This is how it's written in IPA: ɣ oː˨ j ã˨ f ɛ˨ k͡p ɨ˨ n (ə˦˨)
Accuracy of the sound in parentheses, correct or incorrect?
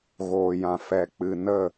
correct